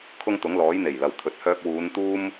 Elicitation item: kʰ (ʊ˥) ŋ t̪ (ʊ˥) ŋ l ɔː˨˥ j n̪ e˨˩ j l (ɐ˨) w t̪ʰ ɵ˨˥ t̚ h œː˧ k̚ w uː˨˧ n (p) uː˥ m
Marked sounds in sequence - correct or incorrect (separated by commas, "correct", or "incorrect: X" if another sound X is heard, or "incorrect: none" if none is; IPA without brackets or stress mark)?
correct, incorrect: ʊ˨˥, correct, incorrect: t̪